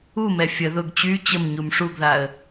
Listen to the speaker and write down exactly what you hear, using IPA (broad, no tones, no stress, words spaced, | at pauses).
umɛ fʲə ðʊɡ t͡ɕy t͡ɕəm ɲumʂuɡðaə̯